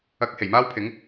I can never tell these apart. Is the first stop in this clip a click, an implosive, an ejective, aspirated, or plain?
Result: plain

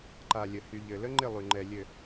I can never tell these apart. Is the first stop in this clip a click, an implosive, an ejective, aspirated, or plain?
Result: click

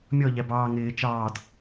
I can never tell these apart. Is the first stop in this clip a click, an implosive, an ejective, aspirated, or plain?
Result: plain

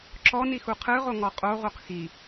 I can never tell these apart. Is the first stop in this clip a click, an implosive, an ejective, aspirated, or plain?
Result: click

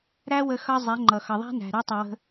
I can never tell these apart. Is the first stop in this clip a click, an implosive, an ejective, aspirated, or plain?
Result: click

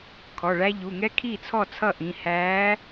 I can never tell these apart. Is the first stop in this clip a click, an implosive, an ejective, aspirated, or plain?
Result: aspirated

